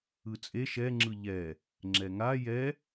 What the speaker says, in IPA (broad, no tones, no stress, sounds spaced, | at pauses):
ɯ t͡sʼ e ʃ ɛ ŋ͡ǁ ɯ ʎ ɛ | ŋ͡ǁ ɛ ŋ a j ɛ